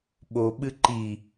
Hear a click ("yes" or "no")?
yes